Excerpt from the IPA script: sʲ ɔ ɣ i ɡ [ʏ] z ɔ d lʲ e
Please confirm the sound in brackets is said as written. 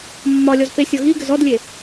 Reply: yes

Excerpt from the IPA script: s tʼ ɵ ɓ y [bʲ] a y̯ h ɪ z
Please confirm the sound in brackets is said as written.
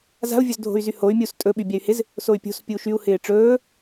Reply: yes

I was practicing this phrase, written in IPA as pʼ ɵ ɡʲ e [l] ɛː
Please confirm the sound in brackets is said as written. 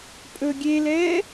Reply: yes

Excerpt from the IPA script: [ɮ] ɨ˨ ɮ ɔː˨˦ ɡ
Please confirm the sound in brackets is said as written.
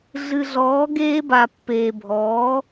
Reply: yes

